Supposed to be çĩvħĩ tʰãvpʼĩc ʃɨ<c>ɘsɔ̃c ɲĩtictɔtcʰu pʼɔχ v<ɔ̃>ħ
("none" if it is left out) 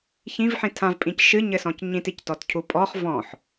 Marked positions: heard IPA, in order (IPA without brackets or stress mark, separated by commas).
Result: ɲ, ɔ̃